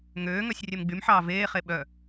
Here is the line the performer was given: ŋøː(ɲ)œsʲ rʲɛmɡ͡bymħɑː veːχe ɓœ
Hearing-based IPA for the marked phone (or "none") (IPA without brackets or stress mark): ŋ